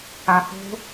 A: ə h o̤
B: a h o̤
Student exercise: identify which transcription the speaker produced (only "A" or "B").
B